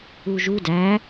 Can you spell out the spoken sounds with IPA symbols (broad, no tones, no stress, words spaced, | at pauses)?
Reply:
uʒu dæ